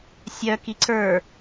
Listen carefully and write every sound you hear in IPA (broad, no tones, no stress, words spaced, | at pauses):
sʲœ kiǀə˞